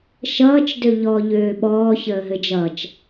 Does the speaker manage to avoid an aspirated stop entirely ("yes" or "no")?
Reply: yes